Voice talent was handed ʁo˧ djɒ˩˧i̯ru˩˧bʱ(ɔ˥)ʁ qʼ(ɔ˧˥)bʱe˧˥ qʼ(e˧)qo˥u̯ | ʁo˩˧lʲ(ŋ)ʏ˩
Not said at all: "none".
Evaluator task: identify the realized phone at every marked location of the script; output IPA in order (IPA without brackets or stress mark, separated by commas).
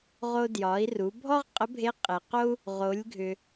ɔ˥, ə˧˥, e˩, ɡʱ